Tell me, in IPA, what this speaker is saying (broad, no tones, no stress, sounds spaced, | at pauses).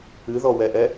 ɨ ð ɔ w ɛ ʔ ɛ